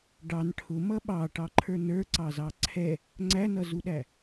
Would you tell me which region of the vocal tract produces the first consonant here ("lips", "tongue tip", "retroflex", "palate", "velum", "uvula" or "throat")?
retroflex